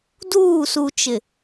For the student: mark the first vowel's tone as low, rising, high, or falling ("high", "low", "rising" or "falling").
falling